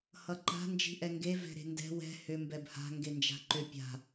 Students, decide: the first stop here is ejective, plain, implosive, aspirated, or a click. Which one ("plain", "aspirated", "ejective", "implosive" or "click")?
click